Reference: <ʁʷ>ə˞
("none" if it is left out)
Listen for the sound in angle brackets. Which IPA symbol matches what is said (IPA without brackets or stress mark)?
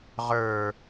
ʁ